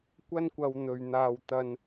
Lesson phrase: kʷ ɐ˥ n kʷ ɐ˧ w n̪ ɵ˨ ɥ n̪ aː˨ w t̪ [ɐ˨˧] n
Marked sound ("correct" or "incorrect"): incorrect